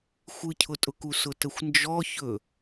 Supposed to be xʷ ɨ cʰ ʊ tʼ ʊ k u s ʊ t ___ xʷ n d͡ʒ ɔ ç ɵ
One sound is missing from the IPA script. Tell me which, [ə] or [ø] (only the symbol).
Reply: ə